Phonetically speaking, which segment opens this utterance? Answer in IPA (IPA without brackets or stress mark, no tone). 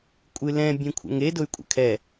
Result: kʷʼ